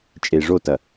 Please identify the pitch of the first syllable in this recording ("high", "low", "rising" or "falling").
low